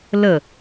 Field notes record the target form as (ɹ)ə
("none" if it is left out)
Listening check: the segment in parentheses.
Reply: l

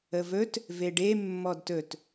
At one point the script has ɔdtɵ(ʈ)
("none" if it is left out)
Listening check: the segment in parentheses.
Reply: t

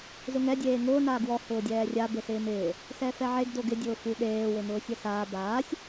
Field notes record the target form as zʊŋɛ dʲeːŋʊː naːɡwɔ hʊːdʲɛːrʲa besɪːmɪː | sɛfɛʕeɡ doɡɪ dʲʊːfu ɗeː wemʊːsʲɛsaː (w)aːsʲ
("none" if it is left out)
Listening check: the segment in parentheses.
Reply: b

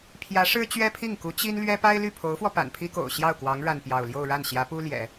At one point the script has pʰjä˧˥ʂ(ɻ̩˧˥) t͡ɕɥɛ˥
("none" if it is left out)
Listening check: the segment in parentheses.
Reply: ɻ̩˥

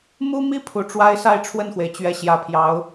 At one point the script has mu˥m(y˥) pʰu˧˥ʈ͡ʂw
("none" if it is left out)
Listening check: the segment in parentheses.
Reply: i˥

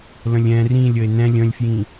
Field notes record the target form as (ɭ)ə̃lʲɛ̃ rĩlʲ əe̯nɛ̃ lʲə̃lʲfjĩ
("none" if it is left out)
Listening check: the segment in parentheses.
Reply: l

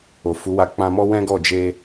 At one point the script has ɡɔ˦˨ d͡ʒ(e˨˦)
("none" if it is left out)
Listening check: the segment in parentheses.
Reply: e˧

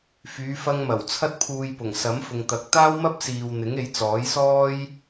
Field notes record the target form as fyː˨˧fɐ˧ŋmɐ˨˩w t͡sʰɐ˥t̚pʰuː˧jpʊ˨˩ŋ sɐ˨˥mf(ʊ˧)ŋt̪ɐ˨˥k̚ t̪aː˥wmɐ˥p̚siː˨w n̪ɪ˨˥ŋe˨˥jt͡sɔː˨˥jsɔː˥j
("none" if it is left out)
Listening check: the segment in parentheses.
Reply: ʊ˨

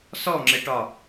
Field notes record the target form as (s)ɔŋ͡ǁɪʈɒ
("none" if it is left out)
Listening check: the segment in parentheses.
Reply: s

